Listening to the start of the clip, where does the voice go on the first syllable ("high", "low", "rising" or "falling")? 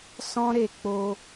high